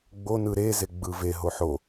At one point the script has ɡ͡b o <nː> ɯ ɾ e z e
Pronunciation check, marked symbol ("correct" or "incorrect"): incorrect